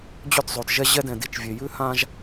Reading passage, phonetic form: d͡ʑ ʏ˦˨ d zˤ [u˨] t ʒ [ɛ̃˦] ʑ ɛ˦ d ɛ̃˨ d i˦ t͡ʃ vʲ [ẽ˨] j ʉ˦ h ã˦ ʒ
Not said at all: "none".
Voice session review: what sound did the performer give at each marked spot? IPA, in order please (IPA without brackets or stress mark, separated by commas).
o˨, ɛ˦, e˨